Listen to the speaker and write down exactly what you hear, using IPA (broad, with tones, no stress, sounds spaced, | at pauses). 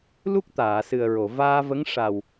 l u˦˥ k̚ t̪ aː˨˩˨ s ɨ˨˩ ə̯ ɹ o˨˩˨ v aː˧ v ə˧˥ ŋ ʂ a˨˩ w